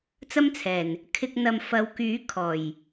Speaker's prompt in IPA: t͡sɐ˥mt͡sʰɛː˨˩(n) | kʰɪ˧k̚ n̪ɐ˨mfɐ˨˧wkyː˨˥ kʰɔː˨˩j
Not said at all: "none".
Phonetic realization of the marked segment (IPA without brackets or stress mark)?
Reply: n